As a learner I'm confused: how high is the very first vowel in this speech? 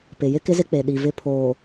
high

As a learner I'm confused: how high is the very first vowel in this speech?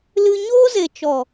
high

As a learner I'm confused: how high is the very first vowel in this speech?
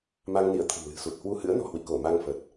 low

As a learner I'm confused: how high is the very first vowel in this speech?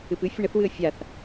high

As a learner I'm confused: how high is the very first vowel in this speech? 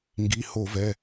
high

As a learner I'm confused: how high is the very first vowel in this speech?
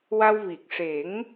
low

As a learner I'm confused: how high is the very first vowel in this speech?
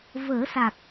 mid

